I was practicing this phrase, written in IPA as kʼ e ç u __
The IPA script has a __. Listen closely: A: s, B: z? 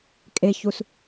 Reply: A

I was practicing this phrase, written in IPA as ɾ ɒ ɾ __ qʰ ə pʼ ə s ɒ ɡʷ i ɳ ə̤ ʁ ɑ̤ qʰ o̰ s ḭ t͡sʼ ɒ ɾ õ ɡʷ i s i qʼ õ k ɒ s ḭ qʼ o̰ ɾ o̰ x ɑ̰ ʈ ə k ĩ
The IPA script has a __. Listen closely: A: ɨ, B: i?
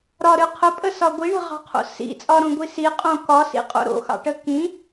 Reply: A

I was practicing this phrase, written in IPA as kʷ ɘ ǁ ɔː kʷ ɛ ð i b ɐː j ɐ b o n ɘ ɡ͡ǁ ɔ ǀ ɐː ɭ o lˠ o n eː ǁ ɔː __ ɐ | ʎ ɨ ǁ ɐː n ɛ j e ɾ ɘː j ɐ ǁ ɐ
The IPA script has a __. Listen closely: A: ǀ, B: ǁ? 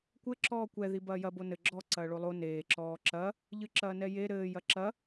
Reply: B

